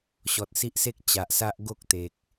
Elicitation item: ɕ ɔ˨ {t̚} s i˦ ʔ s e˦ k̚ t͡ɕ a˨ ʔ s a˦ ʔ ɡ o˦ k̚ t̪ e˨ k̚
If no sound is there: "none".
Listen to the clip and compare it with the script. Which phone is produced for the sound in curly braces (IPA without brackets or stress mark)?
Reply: t̚